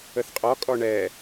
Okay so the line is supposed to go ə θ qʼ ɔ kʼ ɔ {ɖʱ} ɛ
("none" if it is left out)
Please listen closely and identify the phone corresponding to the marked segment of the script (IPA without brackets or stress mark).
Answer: ɳ